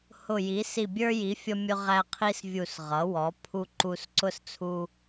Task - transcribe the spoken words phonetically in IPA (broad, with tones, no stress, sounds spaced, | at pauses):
h ʊ˧˩ j i˩˥ s i˧˩ bʲ ə˞˦ j i˩˥ fʲ ʌ˦ mʲ ʊ˦ ʁ æ˦ qʰ i˦ s vʲ u˧˩ s ʁ ʌ˩˥ w ɔ˩˥ pʰ u˦ ǃ u˦ s ǀ ʊ˦ s t͡sʰ u˦